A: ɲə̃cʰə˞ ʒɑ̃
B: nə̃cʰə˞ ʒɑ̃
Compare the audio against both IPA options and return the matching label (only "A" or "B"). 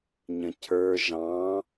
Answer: A